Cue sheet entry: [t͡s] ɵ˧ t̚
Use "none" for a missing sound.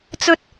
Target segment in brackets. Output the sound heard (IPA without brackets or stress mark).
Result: t͡s